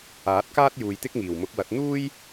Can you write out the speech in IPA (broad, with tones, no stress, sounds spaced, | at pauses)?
aː˨˥ t̚ k aː˥ t̚ j uː˨ j t̪ ɪ˥ k̚ ŋ iː˨˩ w m ʊ˨˥ k̚ w ɐ˨˥ t̚ n̪ uː˥ j